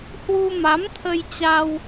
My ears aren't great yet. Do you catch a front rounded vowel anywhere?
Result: no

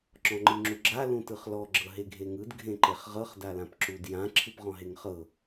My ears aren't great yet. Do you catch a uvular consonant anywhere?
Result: yes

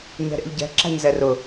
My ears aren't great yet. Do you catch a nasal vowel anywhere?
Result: no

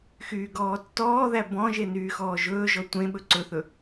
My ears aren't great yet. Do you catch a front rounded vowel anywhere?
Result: yes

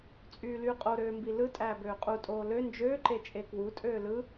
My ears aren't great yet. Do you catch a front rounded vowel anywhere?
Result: yes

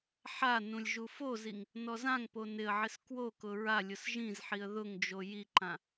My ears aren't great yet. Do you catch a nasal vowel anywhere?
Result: yes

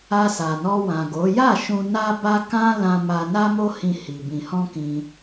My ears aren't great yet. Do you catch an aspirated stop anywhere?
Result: no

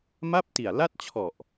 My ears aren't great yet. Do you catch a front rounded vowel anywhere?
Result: no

